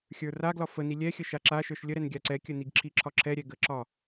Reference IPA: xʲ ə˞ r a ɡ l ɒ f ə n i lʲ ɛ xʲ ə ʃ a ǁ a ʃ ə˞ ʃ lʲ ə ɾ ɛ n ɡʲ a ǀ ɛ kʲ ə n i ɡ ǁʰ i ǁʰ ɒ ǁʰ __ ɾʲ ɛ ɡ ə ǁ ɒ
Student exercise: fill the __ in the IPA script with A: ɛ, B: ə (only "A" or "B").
A